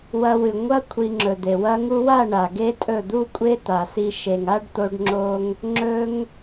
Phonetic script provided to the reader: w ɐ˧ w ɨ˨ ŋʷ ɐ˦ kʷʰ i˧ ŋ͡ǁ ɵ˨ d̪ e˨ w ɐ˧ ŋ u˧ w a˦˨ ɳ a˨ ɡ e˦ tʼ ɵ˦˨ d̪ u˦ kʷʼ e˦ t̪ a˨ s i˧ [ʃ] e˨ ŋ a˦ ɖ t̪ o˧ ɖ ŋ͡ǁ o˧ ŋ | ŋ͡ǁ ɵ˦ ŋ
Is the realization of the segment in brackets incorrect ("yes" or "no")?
no